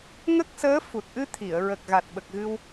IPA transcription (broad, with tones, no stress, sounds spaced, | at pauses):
ŋ ə˦˥ k̚ s əː˧˥ f u˨˩ t̚ ʔ ɨ˧ t̪ʰ i˨˩˨ ə̯ ɹ ə˨˩ k̚ ɣ a˨˩ t̚ ɓ ə˨˩ k̚ ɣ ɨ˧ w